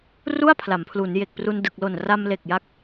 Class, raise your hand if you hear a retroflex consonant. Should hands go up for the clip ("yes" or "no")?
no